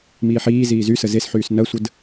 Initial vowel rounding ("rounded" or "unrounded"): unrounded